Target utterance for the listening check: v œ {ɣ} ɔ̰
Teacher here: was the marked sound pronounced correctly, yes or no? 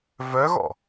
yes